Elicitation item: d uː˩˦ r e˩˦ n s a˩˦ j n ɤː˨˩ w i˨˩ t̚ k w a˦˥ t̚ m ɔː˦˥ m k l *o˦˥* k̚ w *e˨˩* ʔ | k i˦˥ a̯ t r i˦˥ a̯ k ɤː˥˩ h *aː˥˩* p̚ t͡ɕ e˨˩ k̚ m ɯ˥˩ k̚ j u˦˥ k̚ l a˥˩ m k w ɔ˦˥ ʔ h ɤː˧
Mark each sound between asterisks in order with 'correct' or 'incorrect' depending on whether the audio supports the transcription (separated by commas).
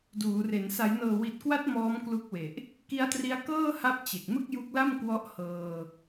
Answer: incorrect, correct, incorrect